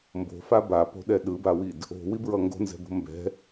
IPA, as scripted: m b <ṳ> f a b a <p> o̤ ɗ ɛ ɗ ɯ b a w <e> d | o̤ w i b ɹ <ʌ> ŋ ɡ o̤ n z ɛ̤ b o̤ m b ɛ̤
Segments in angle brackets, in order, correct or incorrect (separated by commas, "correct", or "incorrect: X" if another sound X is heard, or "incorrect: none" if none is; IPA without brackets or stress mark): incorrect: o̤, correct, incorrect: i, correct